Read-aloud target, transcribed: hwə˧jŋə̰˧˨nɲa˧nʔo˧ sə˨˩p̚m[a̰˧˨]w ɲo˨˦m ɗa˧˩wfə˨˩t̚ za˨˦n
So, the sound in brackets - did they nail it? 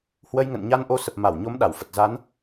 no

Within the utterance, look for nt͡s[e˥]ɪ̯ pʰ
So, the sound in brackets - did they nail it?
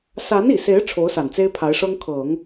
yes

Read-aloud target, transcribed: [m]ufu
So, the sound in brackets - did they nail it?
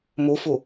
yes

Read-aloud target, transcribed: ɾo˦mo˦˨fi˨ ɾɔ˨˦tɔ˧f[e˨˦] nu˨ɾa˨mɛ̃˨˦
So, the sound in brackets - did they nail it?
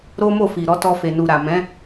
no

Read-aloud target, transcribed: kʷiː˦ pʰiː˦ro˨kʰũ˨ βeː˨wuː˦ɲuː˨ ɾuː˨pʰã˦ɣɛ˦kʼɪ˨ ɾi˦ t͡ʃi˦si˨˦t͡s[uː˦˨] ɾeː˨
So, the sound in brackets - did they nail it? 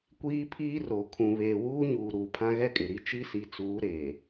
no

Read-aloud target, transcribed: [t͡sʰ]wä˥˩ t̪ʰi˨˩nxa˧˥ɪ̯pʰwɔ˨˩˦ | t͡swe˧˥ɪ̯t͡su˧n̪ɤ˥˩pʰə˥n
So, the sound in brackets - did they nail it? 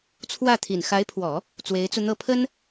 yes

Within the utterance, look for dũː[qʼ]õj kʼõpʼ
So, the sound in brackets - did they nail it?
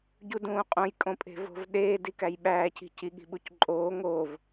yes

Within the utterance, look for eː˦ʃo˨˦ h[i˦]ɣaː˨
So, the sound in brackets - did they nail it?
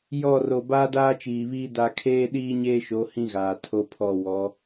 no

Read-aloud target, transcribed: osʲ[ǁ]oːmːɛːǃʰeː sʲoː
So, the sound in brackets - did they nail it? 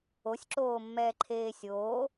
yes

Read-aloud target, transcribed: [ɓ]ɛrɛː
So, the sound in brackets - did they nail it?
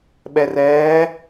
yes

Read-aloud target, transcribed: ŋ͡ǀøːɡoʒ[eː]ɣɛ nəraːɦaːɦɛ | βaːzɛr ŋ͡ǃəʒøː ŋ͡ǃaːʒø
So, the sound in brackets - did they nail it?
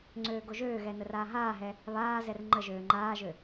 no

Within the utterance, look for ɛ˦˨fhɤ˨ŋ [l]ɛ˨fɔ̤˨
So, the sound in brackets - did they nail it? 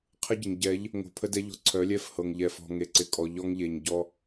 no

